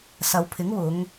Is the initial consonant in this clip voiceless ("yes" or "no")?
yes